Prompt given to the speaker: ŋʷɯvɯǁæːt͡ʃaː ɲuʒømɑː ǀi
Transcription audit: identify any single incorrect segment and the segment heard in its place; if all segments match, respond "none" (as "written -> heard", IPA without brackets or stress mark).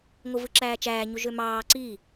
aː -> æː